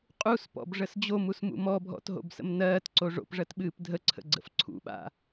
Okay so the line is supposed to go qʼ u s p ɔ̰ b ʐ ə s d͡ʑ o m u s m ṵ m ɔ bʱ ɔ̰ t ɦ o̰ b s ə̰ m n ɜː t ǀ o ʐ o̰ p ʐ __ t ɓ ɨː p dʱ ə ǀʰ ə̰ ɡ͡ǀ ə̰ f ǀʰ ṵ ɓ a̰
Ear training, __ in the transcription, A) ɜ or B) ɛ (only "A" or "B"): A